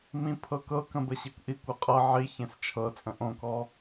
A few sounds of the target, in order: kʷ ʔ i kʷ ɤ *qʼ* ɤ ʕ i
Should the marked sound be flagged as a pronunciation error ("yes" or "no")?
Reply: no